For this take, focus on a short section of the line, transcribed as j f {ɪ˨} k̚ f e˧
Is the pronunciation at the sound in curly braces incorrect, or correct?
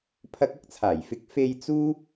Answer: correct